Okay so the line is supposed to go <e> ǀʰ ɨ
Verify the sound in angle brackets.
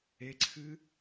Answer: correct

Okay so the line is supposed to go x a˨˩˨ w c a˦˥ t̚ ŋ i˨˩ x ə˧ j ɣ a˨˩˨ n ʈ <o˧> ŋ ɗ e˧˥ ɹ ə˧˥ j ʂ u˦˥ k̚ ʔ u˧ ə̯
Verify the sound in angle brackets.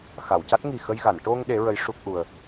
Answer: correct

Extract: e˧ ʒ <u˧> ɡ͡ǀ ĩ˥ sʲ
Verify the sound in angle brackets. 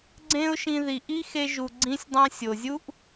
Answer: incorrect: u˩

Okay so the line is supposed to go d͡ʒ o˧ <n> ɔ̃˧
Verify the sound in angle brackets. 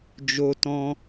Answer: incorrect: t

